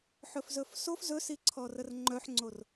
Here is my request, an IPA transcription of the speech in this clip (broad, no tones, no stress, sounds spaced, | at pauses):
ħ ɵ f z ɵ f s o f z ɵ s i ǀʰ ɔ r ə r ŋ͡ǃ œ ħ ŋ͡ǀ o r